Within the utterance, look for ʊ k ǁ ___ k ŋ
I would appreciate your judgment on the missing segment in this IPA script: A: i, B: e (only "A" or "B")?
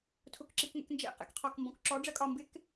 A